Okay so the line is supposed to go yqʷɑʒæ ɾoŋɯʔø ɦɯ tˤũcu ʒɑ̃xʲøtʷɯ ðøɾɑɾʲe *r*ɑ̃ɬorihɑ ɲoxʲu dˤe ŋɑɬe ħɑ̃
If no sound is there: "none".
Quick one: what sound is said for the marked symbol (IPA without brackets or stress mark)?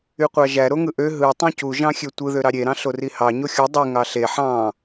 ɾ